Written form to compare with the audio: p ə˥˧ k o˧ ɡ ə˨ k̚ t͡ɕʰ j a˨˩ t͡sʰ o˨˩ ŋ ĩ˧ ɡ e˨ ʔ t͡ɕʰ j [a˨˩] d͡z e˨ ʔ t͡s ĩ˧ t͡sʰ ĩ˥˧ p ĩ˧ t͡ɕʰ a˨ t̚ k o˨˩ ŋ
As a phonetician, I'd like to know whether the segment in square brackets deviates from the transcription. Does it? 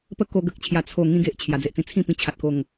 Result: no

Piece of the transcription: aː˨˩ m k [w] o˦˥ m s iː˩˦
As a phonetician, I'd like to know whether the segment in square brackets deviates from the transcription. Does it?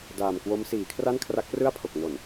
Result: no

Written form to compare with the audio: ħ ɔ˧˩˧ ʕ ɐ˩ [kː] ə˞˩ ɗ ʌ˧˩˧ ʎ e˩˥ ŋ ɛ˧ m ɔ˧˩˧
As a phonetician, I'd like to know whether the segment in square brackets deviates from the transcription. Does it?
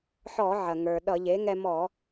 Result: yes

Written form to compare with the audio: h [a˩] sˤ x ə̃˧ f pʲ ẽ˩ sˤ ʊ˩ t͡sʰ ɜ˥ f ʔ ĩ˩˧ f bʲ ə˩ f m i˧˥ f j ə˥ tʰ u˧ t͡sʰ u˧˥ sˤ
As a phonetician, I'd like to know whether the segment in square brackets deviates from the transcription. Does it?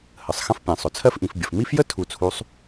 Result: yes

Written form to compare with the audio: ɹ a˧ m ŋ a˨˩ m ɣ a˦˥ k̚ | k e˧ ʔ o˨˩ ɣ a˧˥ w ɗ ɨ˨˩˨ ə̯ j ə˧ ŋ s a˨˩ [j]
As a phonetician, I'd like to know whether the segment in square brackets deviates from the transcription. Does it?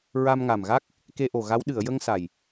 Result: no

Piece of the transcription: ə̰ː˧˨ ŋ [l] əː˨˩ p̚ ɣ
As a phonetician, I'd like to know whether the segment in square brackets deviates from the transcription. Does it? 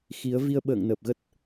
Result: yes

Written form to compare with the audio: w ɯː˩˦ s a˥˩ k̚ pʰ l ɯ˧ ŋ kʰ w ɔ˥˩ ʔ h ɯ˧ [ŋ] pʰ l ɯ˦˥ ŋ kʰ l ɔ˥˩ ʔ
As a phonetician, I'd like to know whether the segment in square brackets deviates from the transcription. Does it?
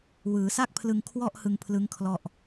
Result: no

